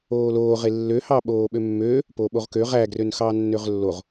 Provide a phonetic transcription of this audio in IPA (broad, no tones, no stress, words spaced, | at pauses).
oːloː ʁelːøhɑ ɓoːɓømːøː | poɓoʁkø ʁæɡrøn xɑːnːøʁlːoʁ